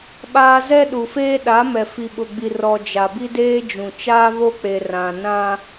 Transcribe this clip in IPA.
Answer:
ɓ aː˦ z ɛ˦ ɗ u˨ f eː˦ ɗ a˨˦ m ɛ˨ f i˨ ɓ ʊ˨ ɡ͡b i˨ r ɔ˨ d͡ʒ a˨ b i˦ d eː˦ d͡ʒ ũ˨ t͡ʃ aː˦ β o˦ k͡p e˨ r ã˨ n ã˦

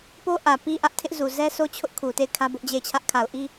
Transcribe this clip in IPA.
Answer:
p o˦ ʔ ä˨ p i˦ ʔ ä˦ ʔ tʰ ɪ˦ ʔ z u˨ z ɛ˦ sʰ o˦ t͡ɕʰ ʊ˦ ʔ kʰ u˨ t e˦˨ ɪ̯ kʰ ä˦ b ʊ˦ ʔ d͡ʑ e˦˨ ɪ̯ t͡ɕʰ ä˦ ʔ kʰ a˨ ʊ̯ ʔ i˦

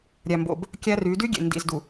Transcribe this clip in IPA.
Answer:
ɾʲ æ˨ m b o̰˨ b | kʲ æ˦ r y˨˦ d y˦ ɡʲ ḛ˨ n d ḭ˨ z d u˨

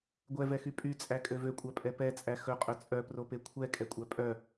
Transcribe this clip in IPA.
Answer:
ɡʷ ɛ v ɛ x y pʼ y t͡sʼ æ kʼ ø v ø kʷʼ æ pʼ ɛ p ɛ t͡sʼ æ x ɵ qʼ ɵ t͡sʼ œ p r o p e kʷʰ ɛ kʼ ɛ kʷʼ æ pʼ œ

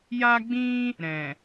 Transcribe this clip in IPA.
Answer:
j a˦ ɡ͡b ĩ˦ | ɾ ɛ̃˨

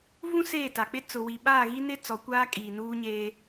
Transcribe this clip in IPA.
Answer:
v ũ˦ s eː˦˨ t a˨ k͡p ɪ˦ t͡s ʊ˨ w i˨ ɓ aː˦˨ ɣ i˦ n ɪ˦ t͡s ɔ˨˦ kʷ aː˦ kʼ iː˨ n uː˦ ɲ eː˦

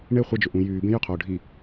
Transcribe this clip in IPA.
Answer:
ɳ e χʷ i d͡ʒ ʏ ʔ ũ j yː b ẽ j ʏ qʰ oː ɖʱ i

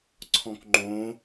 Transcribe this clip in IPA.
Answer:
ǀʰ ɔ̃ k ŋ͡ǃ õ

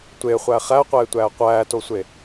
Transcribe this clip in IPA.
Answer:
tʷ e χʷ æ χ æ qʷ eː tʷ æː qʷ æː t o sʷ e

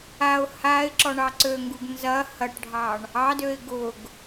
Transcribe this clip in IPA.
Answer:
a ʊ̯ h a ɪ̯ ǁ ɔ ɳ ɑ ǀ ø ŋ ɡ u ɡ n z ɐ h ɐ ʈ ɖʱ ɑ ɳ | ɑ d ø ɪ̯ ɡ ʊ ɡ

